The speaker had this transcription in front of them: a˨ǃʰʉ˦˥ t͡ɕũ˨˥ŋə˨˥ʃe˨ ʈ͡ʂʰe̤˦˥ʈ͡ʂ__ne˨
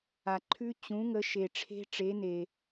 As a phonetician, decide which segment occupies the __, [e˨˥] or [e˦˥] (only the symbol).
e˨˥